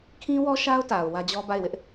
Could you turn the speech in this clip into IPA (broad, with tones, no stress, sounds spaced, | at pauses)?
kʰ ĩ˦ w ɔ˦ ʃ a˦ ʊ̯ t a˨ ʊ̯ w ä˦ d͡ʑ ɔ˦ b a˦˨ ɪ̯ w ɪ˦ ʔ